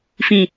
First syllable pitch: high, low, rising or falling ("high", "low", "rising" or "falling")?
low